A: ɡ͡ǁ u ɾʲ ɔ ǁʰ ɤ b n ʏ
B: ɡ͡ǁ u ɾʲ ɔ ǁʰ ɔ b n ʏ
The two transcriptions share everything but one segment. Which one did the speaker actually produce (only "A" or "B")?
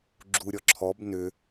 B